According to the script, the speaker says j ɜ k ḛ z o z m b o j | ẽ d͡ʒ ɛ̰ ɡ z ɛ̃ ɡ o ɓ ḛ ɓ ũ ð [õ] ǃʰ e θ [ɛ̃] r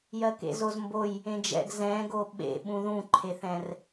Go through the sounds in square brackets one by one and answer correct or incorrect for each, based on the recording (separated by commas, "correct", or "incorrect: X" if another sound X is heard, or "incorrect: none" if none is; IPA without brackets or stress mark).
incorrect: ũ, correct